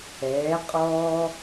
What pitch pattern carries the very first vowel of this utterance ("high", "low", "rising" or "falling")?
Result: rising